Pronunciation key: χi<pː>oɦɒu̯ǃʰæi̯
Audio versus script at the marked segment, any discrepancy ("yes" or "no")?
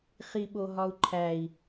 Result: yes